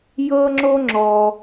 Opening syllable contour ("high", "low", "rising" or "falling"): high